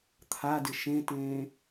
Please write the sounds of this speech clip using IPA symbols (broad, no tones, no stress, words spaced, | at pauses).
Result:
t̪ʰadɪ ʃẽtẽː